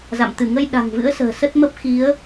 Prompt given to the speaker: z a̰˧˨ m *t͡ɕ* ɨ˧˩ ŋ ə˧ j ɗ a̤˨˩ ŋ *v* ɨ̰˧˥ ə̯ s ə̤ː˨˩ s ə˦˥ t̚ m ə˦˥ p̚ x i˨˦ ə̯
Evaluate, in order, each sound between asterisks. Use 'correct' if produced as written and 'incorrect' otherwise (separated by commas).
incorrect, correct